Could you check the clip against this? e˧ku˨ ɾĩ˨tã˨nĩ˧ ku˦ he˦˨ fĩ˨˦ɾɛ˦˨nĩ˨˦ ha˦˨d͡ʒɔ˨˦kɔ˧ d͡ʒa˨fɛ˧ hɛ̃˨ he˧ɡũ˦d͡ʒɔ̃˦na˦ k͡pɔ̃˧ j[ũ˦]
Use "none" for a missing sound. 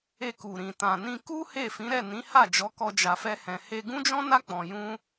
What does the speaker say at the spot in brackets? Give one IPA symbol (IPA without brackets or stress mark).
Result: ũ˦